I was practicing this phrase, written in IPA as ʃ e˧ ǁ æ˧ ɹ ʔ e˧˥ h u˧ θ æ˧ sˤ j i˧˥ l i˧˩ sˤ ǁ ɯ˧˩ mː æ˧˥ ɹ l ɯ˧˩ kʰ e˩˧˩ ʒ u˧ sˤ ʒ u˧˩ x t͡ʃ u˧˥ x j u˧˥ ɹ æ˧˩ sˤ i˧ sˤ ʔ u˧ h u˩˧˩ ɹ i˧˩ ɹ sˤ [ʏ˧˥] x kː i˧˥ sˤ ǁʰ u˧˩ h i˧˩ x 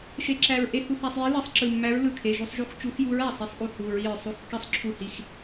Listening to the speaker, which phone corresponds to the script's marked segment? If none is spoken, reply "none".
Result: u˧˥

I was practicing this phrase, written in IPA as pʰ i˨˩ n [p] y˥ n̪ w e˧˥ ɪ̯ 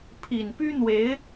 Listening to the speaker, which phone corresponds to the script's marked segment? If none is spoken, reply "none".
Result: p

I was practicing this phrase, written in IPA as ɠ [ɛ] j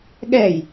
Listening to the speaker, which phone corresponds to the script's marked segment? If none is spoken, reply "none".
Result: ɛ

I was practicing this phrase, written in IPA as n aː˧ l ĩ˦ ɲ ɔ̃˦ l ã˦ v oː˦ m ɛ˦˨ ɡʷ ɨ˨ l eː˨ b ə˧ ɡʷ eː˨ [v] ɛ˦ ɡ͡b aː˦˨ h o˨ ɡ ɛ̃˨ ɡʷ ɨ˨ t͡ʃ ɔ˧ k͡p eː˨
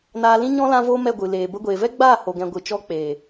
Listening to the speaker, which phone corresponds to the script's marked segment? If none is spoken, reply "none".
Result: v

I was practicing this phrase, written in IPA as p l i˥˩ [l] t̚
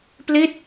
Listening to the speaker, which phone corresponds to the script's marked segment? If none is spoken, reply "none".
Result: none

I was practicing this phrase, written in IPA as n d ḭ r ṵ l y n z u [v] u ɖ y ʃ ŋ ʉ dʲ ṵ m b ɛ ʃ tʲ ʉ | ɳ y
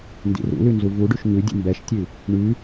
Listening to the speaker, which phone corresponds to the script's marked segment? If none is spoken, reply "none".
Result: v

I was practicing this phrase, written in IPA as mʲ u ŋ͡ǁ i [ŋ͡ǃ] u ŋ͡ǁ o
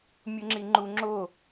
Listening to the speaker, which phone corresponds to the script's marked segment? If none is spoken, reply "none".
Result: ŋ͡ǃ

